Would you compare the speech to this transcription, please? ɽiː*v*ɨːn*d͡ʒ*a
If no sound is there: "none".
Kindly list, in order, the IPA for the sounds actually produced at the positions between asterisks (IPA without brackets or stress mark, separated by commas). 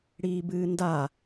b, d